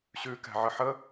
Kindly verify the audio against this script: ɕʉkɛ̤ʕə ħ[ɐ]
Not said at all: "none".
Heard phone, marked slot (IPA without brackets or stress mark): ə